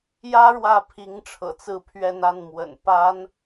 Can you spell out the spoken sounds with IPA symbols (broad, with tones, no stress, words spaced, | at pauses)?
jä˥ ɻwä˥˩pʰi˧˥ŋʈ͡ʂʰɤ̰˨˩ t͡sɹ̩˥˧pʰɥɛ˥˧n a˥˩nmwə̰˨˩n pa˥n